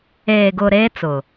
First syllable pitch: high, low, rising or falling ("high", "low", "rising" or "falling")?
low